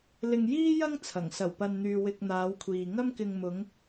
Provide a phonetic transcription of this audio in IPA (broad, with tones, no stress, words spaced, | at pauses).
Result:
lɪ˧ŋjiː˥ jɐ˥ŋ t͡sʰɐ˨˩ŋ sɐ˨˩wpɐ˨nn̪yː˨ wɪ˧k̚n̪aː˨˧wkʷʰiː˨ ŋɐ˥mkɪ˧ŋ mʊ˨˧ŋ